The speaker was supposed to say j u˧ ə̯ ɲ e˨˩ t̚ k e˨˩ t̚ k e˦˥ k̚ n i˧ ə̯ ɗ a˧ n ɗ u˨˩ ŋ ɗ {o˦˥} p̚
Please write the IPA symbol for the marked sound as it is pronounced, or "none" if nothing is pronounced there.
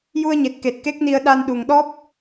ɔ˦˥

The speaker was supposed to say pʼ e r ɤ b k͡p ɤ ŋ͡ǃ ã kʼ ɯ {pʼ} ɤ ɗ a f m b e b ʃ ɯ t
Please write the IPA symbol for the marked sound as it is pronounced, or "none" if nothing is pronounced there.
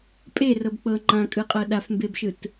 qʼ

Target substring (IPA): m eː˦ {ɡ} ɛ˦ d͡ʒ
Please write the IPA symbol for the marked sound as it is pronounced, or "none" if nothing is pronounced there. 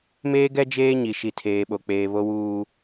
ɡ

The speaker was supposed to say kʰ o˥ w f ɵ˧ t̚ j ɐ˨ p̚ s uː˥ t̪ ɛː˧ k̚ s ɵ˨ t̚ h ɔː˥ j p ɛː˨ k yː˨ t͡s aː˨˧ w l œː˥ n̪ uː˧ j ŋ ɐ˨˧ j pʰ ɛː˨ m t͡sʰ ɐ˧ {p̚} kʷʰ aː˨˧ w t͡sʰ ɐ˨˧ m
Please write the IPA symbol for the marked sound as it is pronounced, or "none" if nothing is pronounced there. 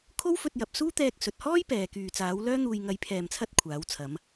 t̚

